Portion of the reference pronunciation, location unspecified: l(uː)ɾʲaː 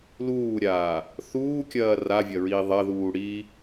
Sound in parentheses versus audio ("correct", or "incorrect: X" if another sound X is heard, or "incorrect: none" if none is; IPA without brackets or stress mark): correct